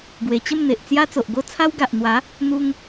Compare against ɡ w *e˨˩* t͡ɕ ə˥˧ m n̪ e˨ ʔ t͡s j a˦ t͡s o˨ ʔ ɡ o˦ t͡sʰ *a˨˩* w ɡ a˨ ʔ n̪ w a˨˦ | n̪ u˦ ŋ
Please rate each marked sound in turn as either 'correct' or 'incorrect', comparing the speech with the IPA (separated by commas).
correct, incorrect